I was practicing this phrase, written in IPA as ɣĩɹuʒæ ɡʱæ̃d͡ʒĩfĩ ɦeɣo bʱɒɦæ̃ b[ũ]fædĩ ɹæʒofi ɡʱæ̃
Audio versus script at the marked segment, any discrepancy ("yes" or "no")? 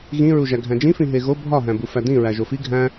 yes